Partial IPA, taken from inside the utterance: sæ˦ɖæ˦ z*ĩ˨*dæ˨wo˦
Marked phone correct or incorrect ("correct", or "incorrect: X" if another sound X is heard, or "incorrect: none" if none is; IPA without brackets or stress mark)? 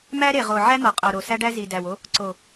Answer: incorrect: i˨